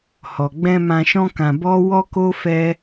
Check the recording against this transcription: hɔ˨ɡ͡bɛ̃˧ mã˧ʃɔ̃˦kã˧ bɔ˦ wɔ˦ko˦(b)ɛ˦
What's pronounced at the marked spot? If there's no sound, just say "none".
f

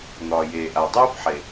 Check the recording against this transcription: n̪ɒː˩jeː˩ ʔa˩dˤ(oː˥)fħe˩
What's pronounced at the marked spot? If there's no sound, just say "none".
oː˥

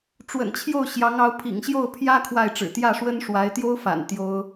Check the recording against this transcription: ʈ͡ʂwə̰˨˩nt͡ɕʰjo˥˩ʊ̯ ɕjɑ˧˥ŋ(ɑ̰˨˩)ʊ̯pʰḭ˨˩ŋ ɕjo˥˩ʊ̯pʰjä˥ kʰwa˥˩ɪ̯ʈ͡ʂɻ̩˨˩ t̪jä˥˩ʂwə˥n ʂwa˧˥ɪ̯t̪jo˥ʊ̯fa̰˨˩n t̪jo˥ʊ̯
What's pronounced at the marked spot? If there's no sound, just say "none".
ɑ˧˥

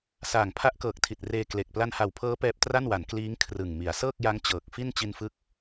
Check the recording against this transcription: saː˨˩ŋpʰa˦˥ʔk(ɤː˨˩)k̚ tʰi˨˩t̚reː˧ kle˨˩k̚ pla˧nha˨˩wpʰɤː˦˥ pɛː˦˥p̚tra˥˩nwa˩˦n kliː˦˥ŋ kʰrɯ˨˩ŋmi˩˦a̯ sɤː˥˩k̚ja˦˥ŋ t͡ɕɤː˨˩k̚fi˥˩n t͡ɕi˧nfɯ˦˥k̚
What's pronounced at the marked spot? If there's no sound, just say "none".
ɤː˨˩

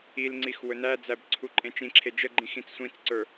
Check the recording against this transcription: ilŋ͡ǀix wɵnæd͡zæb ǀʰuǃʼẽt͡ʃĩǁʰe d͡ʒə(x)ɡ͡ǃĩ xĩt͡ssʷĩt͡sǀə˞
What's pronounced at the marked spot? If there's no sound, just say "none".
none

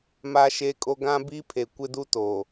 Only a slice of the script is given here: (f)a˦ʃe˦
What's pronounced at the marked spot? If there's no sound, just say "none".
m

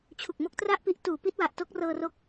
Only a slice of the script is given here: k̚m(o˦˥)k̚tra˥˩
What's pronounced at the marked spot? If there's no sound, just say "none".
o˦˥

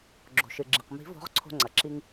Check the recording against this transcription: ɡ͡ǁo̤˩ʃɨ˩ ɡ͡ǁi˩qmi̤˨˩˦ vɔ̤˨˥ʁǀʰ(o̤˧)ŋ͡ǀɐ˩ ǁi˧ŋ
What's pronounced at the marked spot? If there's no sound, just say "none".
o̤˧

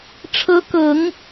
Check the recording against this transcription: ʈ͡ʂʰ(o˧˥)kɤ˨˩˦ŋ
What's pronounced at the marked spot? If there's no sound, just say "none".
ɤ˧˥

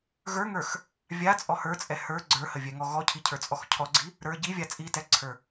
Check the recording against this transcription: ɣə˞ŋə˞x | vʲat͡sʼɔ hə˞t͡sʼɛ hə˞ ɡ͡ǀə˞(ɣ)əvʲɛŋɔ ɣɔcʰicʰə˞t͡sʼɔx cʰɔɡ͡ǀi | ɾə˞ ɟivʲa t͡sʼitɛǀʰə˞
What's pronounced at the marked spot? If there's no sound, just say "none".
h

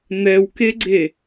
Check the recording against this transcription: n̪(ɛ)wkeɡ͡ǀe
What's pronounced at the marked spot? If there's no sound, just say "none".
ɛ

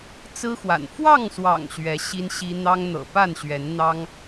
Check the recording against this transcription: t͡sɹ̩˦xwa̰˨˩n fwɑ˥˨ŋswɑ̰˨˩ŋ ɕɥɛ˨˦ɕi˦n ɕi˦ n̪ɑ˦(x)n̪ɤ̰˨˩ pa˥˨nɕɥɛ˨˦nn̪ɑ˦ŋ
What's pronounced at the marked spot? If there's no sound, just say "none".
ŋ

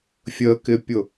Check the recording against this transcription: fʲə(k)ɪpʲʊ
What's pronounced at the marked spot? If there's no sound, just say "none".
k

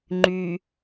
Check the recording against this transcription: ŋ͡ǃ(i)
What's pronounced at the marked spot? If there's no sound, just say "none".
y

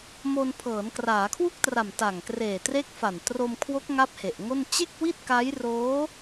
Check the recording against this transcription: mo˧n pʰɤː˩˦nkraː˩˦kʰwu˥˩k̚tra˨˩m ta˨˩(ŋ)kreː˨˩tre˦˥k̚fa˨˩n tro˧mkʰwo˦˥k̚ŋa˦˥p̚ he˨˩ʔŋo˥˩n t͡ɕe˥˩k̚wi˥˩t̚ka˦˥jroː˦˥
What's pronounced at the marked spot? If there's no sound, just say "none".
ŋ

